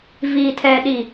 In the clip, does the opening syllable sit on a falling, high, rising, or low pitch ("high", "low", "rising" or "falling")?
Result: low